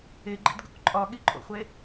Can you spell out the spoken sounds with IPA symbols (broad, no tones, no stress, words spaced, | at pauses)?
eɡ͡ǃḭdɡṵk ǃʼɒɠiǃʼo̰χʷe